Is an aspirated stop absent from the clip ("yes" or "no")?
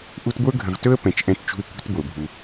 yes